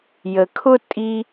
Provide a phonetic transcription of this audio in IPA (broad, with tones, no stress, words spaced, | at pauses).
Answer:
jə˨kʰʊ˦ tʼi˦